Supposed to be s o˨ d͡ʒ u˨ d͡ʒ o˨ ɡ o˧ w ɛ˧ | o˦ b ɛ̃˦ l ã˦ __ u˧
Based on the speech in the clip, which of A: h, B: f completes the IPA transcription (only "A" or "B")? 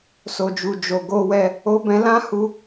A